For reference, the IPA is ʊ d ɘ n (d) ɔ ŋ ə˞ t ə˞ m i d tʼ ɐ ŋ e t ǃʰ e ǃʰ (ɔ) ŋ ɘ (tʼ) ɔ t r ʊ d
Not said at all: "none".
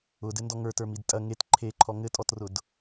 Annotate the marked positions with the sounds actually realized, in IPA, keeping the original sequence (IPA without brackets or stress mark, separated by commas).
d, ɔ, tʼ